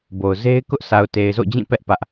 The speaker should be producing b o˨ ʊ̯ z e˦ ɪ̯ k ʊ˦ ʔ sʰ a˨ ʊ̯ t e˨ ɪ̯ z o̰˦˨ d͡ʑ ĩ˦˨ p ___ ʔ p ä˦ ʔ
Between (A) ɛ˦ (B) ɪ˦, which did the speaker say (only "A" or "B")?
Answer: A